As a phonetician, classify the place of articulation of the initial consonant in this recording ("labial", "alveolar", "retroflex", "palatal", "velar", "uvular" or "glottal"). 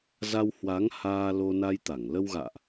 alveolar